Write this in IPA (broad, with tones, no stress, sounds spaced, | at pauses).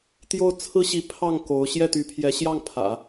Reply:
t̪ j o˥˩ ʊ̯ t͡sʰ ɹ̩˥ ɕ i˧˥ pʰ ɑ˥˩ ŋ k o˧˥ ʊ̯ ɕ j ɛ˥˩ t̪ y˧˥ pʰ j ɛ˧˥ ɕ j ɑ˥˩ ŋ pʰ ä̰˨˩˦